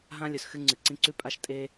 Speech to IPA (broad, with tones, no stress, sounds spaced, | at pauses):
ɦ ã˦ lʲ ɵ˨ s x ɨ˦ ŋ͡ǀ ɨ˨ ǀ ĩ˦ ǀ ʉ˦ pʼ a˦ ʃ tʼ e˦